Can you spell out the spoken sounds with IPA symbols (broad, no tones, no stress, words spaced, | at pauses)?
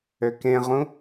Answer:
økẽʁũ